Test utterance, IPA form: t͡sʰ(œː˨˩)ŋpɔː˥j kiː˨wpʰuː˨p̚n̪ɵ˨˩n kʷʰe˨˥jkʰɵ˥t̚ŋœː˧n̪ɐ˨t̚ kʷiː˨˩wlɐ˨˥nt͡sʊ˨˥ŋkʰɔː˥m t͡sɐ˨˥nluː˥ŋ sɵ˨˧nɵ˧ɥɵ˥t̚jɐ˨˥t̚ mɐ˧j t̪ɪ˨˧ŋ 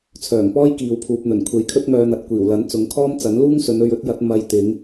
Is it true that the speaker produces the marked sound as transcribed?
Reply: yes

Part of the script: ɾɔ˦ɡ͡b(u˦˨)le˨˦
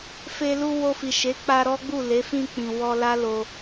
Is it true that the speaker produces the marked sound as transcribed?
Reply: yes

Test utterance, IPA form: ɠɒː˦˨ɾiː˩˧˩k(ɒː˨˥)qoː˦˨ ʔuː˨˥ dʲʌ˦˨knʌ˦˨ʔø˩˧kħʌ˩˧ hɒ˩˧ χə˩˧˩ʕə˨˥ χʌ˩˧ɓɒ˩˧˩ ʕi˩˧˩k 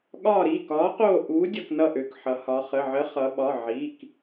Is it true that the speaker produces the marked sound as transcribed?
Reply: yes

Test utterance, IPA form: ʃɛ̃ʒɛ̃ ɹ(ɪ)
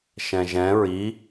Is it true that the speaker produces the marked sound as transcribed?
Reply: no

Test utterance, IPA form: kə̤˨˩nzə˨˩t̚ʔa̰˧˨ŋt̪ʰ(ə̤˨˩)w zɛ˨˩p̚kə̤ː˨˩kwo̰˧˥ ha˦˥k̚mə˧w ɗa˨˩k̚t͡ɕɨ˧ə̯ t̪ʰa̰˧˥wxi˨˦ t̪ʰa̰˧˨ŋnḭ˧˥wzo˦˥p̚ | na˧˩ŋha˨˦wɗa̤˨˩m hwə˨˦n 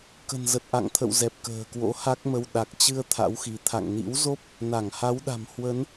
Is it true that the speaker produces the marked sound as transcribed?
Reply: no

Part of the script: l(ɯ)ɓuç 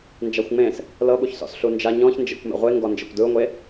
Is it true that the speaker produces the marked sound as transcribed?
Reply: no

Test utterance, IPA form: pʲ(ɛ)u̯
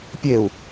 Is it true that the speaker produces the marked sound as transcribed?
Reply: no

